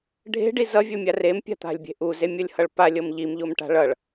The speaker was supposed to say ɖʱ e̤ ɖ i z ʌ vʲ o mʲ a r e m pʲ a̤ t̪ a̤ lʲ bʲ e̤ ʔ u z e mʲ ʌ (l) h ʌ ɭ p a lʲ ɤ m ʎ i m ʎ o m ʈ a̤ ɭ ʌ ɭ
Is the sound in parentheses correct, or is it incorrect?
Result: incorrect